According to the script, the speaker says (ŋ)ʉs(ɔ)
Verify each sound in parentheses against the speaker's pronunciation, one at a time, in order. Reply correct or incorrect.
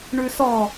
incorrect, correct

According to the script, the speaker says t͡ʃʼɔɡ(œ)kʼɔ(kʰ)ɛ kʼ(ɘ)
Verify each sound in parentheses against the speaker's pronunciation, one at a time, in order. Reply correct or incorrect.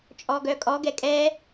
correct, incorrect, incorrect

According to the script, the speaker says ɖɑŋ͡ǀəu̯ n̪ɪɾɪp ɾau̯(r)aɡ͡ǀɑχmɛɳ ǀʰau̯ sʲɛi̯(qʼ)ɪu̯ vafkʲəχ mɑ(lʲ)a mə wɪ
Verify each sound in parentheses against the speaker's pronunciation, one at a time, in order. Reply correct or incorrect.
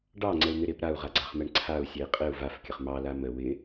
incorrect, correct, incorrect

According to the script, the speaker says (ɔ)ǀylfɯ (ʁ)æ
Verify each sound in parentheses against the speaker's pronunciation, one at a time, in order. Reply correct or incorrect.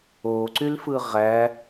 incorrect, correct

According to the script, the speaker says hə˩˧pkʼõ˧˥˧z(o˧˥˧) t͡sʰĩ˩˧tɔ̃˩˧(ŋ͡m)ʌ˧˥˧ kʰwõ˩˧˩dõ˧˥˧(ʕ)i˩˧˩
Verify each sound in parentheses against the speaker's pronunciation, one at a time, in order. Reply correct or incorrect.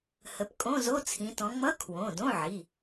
correct, correct, correct

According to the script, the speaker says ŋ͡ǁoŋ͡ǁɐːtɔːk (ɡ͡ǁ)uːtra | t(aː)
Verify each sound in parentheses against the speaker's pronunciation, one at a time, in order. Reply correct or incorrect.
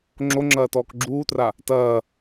correct, incorrect

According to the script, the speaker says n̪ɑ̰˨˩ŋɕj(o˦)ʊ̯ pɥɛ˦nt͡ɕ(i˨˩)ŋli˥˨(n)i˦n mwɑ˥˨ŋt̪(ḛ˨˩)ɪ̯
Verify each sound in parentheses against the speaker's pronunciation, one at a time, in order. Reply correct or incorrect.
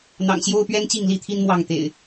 correct, incorrect, incorrect, correct

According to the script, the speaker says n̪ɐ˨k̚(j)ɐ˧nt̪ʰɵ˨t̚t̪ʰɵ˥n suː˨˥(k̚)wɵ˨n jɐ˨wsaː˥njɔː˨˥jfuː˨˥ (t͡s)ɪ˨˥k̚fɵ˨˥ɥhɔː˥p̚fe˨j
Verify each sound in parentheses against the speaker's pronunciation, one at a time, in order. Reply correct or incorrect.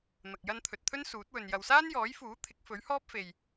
correct, incorrect, incorrect

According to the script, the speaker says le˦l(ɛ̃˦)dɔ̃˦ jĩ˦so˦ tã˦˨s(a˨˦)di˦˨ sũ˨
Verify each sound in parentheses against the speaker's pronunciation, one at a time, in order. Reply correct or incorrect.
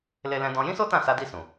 correct, correct

